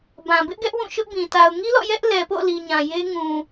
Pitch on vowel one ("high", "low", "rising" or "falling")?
low